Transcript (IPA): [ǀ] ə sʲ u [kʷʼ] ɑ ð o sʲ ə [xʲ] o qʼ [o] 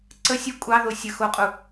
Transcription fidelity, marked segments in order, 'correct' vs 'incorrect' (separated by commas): correct, correct, incorrect, incorrect